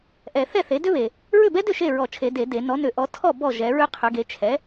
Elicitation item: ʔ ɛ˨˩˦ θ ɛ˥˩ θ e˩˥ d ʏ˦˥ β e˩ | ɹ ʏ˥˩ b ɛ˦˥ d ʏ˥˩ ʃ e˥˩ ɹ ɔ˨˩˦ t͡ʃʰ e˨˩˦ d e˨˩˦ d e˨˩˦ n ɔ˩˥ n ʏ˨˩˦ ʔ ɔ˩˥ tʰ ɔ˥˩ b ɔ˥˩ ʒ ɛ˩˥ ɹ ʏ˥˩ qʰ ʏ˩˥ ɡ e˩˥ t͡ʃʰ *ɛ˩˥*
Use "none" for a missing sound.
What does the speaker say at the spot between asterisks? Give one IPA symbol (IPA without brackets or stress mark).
ɛ˩˥